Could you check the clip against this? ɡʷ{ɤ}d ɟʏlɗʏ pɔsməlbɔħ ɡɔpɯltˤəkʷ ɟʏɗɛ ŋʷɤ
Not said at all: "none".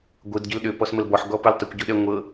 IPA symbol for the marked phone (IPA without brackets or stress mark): ɯ